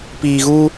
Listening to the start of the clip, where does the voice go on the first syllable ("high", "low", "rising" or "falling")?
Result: low